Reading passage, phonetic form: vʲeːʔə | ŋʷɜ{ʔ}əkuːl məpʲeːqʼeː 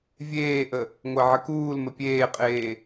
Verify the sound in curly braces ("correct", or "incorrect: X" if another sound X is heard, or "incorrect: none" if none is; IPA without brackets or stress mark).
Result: incorrect: ʕ